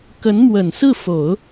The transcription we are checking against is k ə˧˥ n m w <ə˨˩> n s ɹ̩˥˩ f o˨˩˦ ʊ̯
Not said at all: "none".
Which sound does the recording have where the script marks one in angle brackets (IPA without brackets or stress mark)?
ə˨˩